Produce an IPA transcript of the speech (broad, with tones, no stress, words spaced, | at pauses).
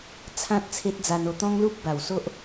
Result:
t͡sʰã˦t̚ t͡sʰe˦t̚d͡za˧no˧ t̪ɔ̃˦ŋlu˦p̚ba˨˩w so˦ʔ